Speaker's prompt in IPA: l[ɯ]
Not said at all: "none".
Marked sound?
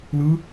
ɯ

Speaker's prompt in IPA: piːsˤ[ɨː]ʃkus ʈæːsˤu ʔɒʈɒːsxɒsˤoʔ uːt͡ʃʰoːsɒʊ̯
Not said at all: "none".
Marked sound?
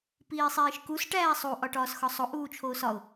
iː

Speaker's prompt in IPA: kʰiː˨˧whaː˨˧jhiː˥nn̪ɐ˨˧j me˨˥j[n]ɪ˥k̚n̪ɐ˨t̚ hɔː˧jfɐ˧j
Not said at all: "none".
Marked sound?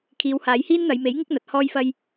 ŋ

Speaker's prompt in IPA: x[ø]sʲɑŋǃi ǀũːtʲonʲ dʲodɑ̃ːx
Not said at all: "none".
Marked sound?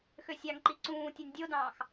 ø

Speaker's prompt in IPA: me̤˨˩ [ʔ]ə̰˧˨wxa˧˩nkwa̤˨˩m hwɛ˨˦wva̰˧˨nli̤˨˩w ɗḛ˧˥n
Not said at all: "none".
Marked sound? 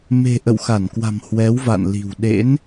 ʔ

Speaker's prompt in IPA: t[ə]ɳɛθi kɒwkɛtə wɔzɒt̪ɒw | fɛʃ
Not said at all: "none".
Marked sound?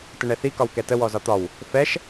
ə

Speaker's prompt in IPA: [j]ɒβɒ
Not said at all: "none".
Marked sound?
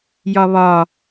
j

